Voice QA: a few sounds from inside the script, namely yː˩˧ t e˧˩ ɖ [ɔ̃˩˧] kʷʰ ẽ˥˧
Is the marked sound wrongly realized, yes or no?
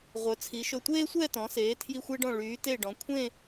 no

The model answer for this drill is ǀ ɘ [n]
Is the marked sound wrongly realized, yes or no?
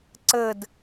yes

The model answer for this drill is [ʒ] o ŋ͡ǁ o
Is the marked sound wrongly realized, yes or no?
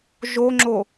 no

